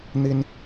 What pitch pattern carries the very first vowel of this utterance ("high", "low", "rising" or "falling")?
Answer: high